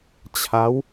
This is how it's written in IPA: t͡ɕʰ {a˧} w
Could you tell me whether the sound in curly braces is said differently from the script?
yes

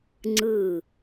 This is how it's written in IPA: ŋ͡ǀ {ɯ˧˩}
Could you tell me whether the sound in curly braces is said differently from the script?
no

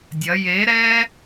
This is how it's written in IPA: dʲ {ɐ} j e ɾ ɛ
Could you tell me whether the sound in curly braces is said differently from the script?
no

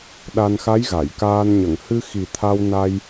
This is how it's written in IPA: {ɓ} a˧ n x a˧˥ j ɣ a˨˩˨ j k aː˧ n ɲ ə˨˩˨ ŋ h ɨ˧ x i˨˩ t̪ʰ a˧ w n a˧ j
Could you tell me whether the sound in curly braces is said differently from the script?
yes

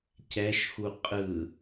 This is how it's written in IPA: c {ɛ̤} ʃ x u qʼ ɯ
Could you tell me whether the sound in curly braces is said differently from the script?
yes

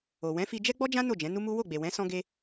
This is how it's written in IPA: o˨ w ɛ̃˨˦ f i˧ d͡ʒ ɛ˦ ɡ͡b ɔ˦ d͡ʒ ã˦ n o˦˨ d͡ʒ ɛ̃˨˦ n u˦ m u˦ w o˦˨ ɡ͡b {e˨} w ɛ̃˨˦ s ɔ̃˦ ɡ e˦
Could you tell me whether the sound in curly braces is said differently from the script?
no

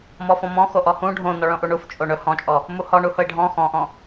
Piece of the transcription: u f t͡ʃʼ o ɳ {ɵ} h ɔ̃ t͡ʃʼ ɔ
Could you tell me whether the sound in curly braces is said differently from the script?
no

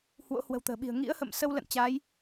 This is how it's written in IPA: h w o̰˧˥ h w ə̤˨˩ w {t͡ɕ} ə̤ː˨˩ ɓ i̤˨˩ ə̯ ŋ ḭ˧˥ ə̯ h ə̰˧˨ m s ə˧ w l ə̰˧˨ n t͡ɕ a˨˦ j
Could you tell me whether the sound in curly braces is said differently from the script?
yes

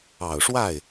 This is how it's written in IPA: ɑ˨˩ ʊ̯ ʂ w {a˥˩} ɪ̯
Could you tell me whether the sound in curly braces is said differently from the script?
no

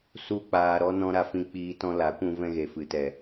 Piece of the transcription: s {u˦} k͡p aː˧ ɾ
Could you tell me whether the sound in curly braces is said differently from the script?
no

